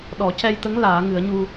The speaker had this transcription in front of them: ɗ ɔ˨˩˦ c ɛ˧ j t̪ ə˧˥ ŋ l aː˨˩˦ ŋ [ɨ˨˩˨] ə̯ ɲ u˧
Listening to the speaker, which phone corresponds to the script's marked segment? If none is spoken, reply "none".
ɨ˨˩˦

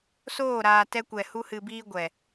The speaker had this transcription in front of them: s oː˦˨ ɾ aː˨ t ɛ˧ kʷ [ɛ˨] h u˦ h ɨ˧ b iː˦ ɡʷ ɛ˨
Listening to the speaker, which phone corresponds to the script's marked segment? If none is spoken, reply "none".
ɛ˨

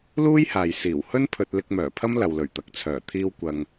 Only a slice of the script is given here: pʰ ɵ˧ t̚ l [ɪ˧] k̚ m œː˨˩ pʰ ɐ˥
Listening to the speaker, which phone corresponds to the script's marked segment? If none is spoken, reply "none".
ɪ˧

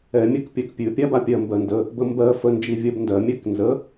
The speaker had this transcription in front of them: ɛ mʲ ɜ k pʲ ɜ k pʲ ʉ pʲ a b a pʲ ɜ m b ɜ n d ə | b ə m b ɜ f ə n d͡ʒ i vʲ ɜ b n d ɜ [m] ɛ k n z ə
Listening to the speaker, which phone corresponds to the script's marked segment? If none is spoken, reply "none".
mʲ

